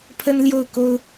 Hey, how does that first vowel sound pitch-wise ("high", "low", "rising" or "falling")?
high